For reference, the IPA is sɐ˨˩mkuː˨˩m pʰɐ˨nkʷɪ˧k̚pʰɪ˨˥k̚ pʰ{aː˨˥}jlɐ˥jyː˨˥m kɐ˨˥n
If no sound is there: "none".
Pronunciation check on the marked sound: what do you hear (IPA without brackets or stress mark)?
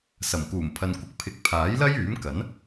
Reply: aː˨˥